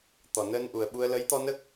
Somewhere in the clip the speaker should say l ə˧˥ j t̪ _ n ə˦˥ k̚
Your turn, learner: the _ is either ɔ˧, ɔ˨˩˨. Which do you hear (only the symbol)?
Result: ɔ˧